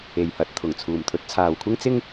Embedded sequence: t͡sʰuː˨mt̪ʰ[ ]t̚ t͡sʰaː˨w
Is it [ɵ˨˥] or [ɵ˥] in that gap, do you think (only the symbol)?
ɵ˨˥